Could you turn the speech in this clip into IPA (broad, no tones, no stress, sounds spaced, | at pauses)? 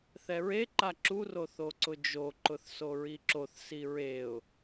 θ ɛ ɹ e ǃ a ǁ u r o θ o ǀ ʊ d͡ʒ o ǃ ʊ θ s o ɹ i ǁ o θ s i ɹ e ʊ̯